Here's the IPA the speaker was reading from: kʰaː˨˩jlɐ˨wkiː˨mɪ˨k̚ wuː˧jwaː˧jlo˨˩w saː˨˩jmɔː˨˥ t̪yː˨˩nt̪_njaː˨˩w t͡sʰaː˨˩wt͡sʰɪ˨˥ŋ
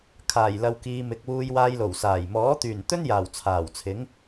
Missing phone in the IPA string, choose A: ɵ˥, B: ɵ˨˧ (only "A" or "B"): A